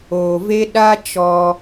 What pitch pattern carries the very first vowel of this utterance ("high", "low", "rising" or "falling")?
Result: low